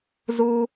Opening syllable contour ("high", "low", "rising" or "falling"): high